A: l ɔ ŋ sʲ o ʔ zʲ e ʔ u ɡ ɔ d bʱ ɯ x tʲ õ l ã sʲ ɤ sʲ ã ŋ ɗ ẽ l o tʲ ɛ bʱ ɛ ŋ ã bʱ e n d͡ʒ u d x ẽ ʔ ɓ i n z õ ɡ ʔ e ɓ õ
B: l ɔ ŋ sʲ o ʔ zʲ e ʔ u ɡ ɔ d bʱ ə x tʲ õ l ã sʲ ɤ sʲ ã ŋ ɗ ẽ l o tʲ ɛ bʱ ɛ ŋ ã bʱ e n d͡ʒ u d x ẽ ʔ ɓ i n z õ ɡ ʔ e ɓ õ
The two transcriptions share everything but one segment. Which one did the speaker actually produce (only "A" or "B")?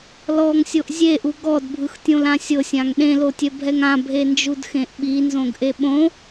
A